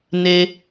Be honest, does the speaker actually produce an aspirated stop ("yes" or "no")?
no